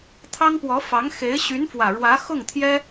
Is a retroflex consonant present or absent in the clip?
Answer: present